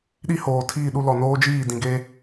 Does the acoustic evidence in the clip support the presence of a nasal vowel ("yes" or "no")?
yes